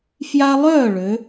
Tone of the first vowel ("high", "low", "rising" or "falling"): high